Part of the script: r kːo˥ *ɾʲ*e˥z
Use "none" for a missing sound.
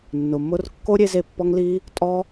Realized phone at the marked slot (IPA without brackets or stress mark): ɾʲ